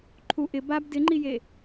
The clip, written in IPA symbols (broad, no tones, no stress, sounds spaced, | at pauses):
ǃʰ u ʔ ɪ b a b d ɪ ŋ͡ǃ i j e